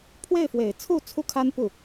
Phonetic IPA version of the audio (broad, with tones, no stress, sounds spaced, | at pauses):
pʰ w e˥˩ ɪ̯ f w e˨˩ ɪ̯ t͡sʰ u˥˩ t͡sʰ u˥ kʰ a˥ n p u˥˩